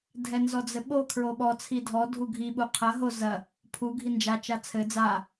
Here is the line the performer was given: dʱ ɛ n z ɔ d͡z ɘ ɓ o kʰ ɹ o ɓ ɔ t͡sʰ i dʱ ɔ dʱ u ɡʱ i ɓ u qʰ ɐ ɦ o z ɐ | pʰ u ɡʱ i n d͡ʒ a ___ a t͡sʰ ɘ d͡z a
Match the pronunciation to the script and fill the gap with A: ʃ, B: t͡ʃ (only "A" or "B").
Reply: B